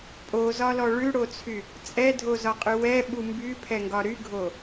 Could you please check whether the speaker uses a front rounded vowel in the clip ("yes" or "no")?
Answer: yes